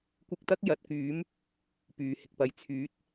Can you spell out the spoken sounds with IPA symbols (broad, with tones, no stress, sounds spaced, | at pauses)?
kʷ ɪ˧ k̚ t̪ ɐ˥ k̚ j ɐ˨˥ t̚ k yː˨˥ m | p yː˨ h ɪ˨ k̚ p ɐ˧ j t͡sʰ yː˨˥ t̚